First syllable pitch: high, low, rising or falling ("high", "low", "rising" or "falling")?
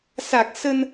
low